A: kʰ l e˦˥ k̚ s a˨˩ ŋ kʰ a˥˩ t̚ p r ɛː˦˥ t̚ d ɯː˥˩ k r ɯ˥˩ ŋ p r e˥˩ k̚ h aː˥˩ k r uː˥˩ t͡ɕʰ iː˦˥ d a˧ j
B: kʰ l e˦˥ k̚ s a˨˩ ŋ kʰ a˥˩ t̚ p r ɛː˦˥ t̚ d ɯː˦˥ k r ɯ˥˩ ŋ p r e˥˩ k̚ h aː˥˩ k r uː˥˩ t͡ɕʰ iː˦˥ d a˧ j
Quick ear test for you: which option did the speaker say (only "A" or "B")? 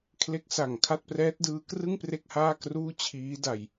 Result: B